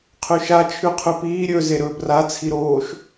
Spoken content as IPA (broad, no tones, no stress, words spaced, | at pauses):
qʰʉʃa t͡ʃʰʉqʰʉpiː ɾʲɵ zeɾɵːbra t͡sʰiɾoːʃ